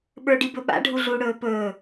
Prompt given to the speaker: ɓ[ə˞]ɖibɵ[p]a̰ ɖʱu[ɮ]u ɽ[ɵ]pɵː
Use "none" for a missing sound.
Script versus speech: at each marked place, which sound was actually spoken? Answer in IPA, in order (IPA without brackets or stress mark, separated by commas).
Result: ə˞, ɓ, ɮ, ɵː